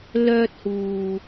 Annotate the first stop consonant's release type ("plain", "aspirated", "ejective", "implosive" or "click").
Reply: plain